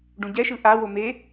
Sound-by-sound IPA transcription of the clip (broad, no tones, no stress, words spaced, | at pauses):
ɖũɟɛʃɯ ʔawo me